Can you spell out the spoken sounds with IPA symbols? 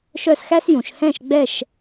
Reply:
ʃ œ˥˨ s x æ˥ s j ũ˩˧ ʃ h ɛ̃˥˨ ʃ ɡ͡b ɛ˥˨ ʃ

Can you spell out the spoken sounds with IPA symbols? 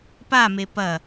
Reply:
p a m e p ɐ

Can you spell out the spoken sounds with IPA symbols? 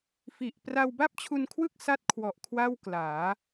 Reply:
f i˨˩ ʔ p r a˧ w b a˥˩ p̚ t͡ɕʰ u˧ n kʰ w ɯ˥˩ k̚ s a˥˩ t̚ kʰ w ɔ˨˩ ʔ kʰ w a˥˩ w k l aː˩˦

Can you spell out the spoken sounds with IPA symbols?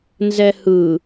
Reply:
n z ɛ h ɯ

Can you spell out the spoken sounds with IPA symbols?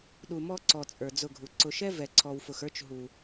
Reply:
ɗ u˨ m ɔ˦ ǀ ɔ˨ t͡sʼ ə˞˨ d͡z ʊ˦˨ ɡʱ u˨ ǀ ʊ˨ ʃ ɛ˦ v ɛ˨ ǀʰ ɔ˨ w f ʊ˨ x ə˞˦ t͡ʃ ɦ u˨

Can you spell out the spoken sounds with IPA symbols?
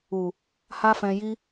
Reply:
u˨ | h a˦ f ɛ̃˧ j i˦

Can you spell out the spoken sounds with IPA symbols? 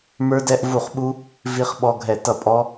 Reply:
m ə˞˦˥ d ɛ˦˥ ʔ v u˥˩ χ ɓ u˦˥ | v i˦˥ χ ɓ ɔ˦˥ ɡʱ ɛ˥˩ t ʌ˥˩ pʼ ɔ˦˥

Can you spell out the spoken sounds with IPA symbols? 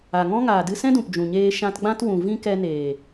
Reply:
a˨ ŋ ɔ̃˦ ŋ aː˨ d ɨ˧ s ɛ̃˦ d ũ˨ p d͡ʒ ũ˨ ɲ eː˧ ʃ ã˧ t ɡ͡b ã˦ t w ũ˨ v ĩ˦ k ɛ˧ n eː˨

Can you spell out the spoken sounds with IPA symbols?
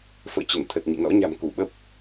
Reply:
f ə̰ː˧˨ t͡ɕ ə˧˩ n t̪ʰ ə˨˩ t̚ ɲ ḭ˧˨ n ɔ̰˧˥ ɲ a̤˨˩ m k u˧˩ ɓ ə˦˥ p̚

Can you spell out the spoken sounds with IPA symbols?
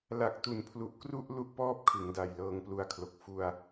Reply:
l a˨˩ k̚ t u˨˩ n pʰ l u˨˩ ʔ k r u˥˩ ʔ l u˥˩ ʔ p ɔː˥˩ p̚ kʰ ɯ˩˦ ŋ d a˨˩ j l ɤː˧ ŋ p l u˧ a̯ kʰ l o˨˩ k̚ f u˧ a̯

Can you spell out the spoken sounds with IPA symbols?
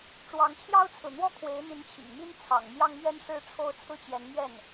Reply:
ʈ͡ʂ w ɑ˧˥ ŋ t͡ɕʰ j ɑ˥ ʊ̯ t͡sʰ ɹ̩˨ n̪ w ɔ˥ kʰ w e˧˥ ɪ̯ n̪ i˧˥ n t͡ɕʰ ḭ˨˩ ŋ m i˥ n t͡sʰ ɑ̰˨˩ ŋ m j ɑ˥ ŋ m ɥ ɛ˥ n ʂ ɻ̩˥˧ ʈ͡ʂʰ o˥˧ ʊ̯ t͡sʰ ɹ̩˥˩ t͡ɕ j ɛ˧˥ n m ɥ ɛ˥˩ n

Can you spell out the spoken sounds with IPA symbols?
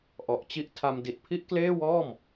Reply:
ʔ ɔ˨˩ ʔ t͡ɕ i˦˥ ʔ tʰ a˧ m d i˨˩ t̚ pʰ i˥˩ ʔ k l eː˥˩ w ɔː˥˩ m

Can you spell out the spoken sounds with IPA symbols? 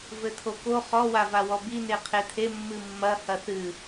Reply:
v ɘ t̪ʰ o k o χ ɔ w a v a w ɔ b i n e qʰ e t̪ʰ e mː ɨ mː ɐ h ɐ θ ɨ

